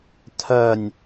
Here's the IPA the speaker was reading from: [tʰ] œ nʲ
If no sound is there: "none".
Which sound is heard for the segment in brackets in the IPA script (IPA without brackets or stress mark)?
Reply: tʰ